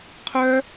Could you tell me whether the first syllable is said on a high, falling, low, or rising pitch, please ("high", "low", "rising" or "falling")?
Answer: high